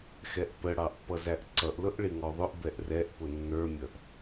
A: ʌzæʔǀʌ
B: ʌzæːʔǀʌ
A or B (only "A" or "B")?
A